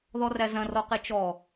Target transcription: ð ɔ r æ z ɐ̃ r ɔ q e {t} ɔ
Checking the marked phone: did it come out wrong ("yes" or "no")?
yes